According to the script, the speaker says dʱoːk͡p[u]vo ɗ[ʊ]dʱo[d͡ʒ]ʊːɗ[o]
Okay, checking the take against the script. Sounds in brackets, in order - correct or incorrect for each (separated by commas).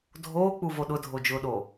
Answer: correct, correct, correct, correct